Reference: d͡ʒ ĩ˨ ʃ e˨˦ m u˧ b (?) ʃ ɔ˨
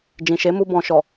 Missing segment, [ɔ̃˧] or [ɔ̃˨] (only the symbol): ɔ̃˨